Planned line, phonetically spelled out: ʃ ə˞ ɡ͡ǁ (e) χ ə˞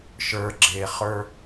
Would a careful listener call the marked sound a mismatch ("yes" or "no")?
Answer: no